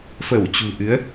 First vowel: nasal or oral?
oral